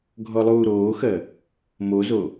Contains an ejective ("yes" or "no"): no